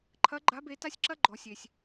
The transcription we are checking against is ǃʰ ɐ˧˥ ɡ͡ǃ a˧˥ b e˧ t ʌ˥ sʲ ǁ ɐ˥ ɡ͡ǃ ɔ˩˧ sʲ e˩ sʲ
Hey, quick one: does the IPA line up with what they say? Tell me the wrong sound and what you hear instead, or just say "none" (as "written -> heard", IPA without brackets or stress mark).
ʌ˥ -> a˥